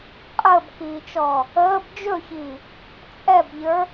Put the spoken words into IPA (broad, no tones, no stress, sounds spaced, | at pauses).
qʼ əː b k iː t͡ʃ ɔː | əː b d͡ʒ ɵ ç iː | t͡sʼ ɛ b ʎ ə˞